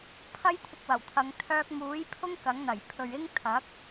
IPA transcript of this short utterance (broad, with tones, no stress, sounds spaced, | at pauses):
pʰ ɐ˥ j t̪ʰ ɪ˧ k̚ w ɐ˨˩ w t̪ʰ ɐ˨˧ ŋ t̪ʰ œː˧ k̚ m uː˨˥ j pʰ ʊ˥ ŋ k ɐ˨˥ ŋ n̪ ɐ˨˩ j pʰ ɵ˨ ɥ ɪ˥ ŋ t̪ʰ ɐ˨˥ k̚